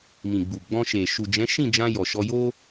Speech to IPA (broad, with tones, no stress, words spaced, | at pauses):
mĩ˨ɡ͡bu˨ɡ͡bɔ̃˧ʃe˨ ʃu˨d͡ʒɛ̃˨˦ ʃĩ˦˨d͡ʒã˧ jɔ˨ʃɔ˧ jo˦